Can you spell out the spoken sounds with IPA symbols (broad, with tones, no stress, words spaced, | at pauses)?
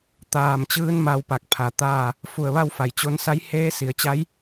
t̪aː˧˩mt͡ɕɯː˧˥n ma˧wpa˧˩k̚ pʰa˧˩t̪aː˥˨ | fu˧˩ə̯ʋa˥˨wfa˩j t͡ɕo˧nsa˧˥j heː˧˥si˩˧ə̯t͡ɕa˧˥j